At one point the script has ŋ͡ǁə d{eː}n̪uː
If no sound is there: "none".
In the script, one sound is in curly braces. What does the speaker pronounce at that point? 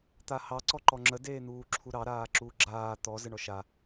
eː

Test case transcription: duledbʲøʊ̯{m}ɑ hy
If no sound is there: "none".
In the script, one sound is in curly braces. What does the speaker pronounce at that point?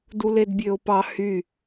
p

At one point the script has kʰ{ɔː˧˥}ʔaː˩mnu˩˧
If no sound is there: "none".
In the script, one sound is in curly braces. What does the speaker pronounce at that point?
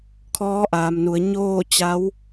ɔː˧˥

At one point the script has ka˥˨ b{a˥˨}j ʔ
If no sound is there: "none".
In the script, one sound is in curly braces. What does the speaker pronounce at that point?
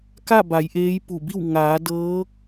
a˩˧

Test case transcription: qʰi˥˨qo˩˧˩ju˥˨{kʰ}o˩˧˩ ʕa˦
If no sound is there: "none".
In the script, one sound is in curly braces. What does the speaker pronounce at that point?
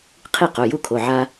kʰ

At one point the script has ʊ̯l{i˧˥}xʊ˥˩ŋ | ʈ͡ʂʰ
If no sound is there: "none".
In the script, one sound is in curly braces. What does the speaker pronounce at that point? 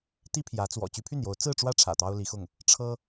i˧˥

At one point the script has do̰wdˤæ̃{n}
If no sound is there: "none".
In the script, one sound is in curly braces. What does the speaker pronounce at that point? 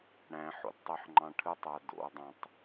tˤ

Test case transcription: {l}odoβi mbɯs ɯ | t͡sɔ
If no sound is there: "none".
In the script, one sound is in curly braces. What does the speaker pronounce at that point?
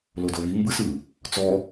l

